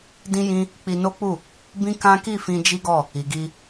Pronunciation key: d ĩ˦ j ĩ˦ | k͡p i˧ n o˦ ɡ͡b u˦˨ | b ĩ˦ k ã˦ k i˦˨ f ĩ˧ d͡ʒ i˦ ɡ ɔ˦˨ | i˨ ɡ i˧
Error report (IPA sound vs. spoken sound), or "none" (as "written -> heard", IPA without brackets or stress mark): ɡ͡b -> k͡p